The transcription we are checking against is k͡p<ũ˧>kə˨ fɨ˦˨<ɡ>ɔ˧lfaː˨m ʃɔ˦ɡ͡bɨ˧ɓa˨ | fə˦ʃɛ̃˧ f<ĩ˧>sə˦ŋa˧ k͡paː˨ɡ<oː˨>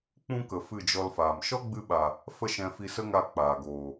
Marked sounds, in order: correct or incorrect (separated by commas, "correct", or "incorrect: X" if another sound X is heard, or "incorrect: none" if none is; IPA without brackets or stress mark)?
incorrect: ũ˦, incorrect: d͡ʒ, incorrect: i˧, correct